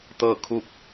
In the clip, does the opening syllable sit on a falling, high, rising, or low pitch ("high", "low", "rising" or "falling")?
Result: falling